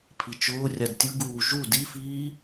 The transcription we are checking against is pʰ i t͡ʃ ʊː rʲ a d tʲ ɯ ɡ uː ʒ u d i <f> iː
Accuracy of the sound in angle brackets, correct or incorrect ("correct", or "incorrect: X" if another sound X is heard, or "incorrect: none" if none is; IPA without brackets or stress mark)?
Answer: correct